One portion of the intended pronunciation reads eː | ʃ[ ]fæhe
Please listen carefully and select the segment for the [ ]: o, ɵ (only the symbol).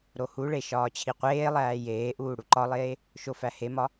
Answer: o